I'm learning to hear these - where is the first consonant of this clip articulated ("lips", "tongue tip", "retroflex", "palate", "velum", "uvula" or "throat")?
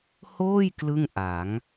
throat